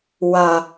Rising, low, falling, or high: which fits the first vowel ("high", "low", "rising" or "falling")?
low